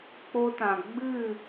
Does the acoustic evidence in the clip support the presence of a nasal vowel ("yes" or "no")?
yes